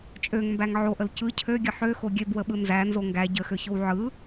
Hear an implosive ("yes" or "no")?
yes